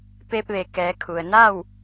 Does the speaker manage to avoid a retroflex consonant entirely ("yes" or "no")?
yes